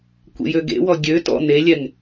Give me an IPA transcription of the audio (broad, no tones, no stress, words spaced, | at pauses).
kʷḛjøɡḛwɔ ɡʲø tɔ̰ nelʲɛŋ